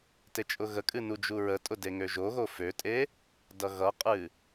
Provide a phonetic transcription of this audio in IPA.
t e t͡ʃʼ ʊ ɣ ə kʼ ɨ n u d͡ʒ u ɹ ə tʼ ʊ d e ŋ ø ʒ o ɣ o f ø tʼ e | d ʌ ɣ ʌ qʼ ɨ

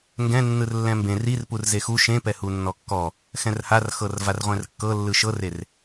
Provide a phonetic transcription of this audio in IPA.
ŋ ɡ ɛ̃ nː ɯ r lː ɛ̃ m b ẽ r i r p u r z e x u ʃ ẽ p ɛ h u nː ɔ kː ɔ | x ɛ̃ r h a r x ɤ r v a r ʁʷ ɛ̃ r kː ɤ lː ɯ ʃ ɤ r e r

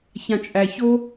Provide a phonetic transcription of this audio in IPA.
ç ã t͡ʃʼ æ ç o

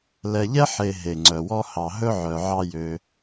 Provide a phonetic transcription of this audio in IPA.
l ɛ˨ ʎ ɛ˥ ħ e˨ ɦ e˩ ŋ͡ǀ œ˩ w ɔ˦ h ɑ˨ ɦ ɵ˥ ʕ œ˨ ʕ ɑ˦ j ø˨

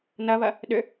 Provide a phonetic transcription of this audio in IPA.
n ɐ β ɐ | ɗ ʏ

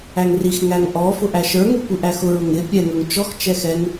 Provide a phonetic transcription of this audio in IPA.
æ ŋ r i x ŋ æ ŋ ʔ ɔ f ʊ ʔ æ ʃ ə˞ ŋ u kʷ i ʔ æ x ʊ ɹ ʊ ŋ ɪ pʲ ɛ ŋ ə˞ ŋ t͡ʃ ɔ x t͡ʃ ɛ x ɛ ŋ

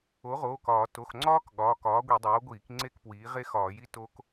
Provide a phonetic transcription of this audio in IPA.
o˩˥ ʁ oː˩˧˩ k ɒː˧˩˧ t o˩˧˩ x ŋ͡ǀ ɒː˦˥ k ɠ ɒː˩˧˩ k ɒː˩˥ ɡʷ i˧˩˧ dˤ oː˩˥ ɡʷ iː˧˩˧ k ŋ͡ǀ e˦˨ k p w iː˩˥ ʁ e˦˥ x ɒː˧˩˧ j i˦˥ t o˦˥ k

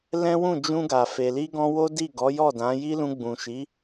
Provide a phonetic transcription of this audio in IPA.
l ɛ̃˦ w ũ˦˨ d͡ʒ ũ˧ ɡ a˨ f e˨ l i˧ ɡ ɔ̃˧ w o˦ d i˦˨ ɡ ɔ˨˦ j ɔ˦˨ d ã˨˦ j i˦ l ũ˧ ɡ͡b ũ˨ ʃ i˨˦

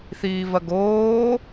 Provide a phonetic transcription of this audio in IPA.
θ iː v ɐ ɡ oː

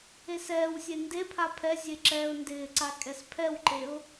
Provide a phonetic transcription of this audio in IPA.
e s ɛː w sʲ e n d e pʰ a pʰ ɛ zʲ e ǁ ɛː ʊ̯ n d ɪː ǀ a kʼ ɛ s pʰ ɛ w ǃ e ʊ̯

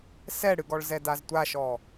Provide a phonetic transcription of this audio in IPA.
s ɛ ɽ ɨ ɡ ɔ ɭ z ɛ d a z tʷ a ʃ ɔ

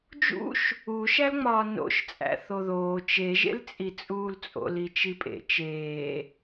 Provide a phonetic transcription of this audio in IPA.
d͡ʒ ṵ ʃ | u ʃ æ l ŋ͡m ɒː n o̰ ʃ t͡sʼ æ̰ θ o ð oː t͡ʃ e ʒ ḛ l t͡sʼ i t͡sʼ uː l t͡sʼ o̰ l i t͡ʃ i pʼ ḛ t͡ʃ eː

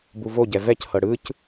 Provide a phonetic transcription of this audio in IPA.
b u v o ɟ ɛ v ɛ c h ɤ ɽ ɯ c

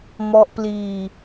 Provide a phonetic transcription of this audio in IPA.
m ɔ˦˥ ʔ p l iː˧

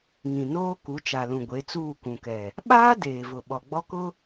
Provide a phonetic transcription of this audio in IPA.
ŋ ĩ˨ n oː˦ k u˨˦ t͡ʃ a˨ l ũ˨ ɡʷ e˨˦ t͡s uː˦˨ k ũ˨ k ɛ˨ | ɓ aː˦ d eː˨ v ʊ˨ ɓ ɔ˨ ɡ͡b ɔ˦ k ʊ˦

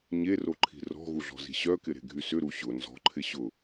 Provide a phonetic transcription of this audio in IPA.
ɲ e r o ǃʰ i̤ r ɔ̤ ɣ u ɮ ɔ̤ z i̤ ɕ œ k ɪ ɾ e̤ ɡʱ y s ʏ ɾ u ɕ ʊ n z ɔ̤ ǃʰ ɪ ɕ ʊ

